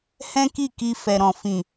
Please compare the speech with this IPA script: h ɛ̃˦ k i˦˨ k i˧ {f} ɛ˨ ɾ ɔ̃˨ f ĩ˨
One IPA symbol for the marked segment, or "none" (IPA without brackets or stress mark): f